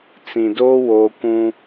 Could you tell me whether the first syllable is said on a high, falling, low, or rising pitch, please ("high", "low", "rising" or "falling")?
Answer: low